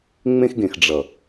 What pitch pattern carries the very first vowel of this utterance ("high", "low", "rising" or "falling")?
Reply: high